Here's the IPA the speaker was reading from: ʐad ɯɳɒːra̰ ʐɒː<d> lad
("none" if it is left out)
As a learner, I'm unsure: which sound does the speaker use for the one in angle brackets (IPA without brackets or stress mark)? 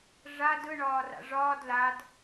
d